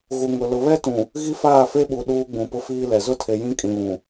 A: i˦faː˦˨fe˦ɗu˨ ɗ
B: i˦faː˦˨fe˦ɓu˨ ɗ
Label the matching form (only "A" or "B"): B